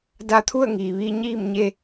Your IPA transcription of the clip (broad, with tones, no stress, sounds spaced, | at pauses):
d a˧ t̪ʰ u˥˨ ə̯ ŋ iː˩ ʋ iː˧ ɲ iː˥˨ m ɲ e˧